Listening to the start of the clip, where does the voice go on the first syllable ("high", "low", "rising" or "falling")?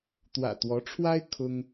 low